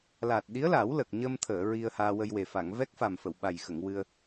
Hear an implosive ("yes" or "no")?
yes